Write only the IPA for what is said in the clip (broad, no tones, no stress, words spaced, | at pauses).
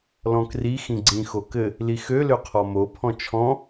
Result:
lɔ̃kri xĩɡ͡ǀĩ xokɘ | lixø løqʰɔmo pʰɔ̃t͡ʃʰɔ̃